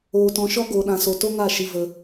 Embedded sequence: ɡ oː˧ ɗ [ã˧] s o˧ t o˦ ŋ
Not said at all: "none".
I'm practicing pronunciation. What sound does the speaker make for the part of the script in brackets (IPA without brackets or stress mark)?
ã˧